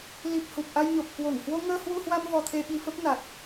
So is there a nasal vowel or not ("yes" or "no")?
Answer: no